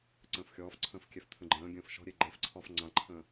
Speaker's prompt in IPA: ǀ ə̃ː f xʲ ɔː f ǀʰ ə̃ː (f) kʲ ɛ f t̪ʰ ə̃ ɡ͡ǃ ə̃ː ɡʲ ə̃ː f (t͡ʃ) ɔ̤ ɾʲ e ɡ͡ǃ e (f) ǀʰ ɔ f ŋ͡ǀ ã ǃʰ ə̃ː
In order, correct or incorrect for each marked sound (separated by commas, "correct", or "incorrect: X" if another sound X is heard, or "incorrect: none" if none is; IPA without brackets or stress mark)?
correct, incorrect: ʃ, correct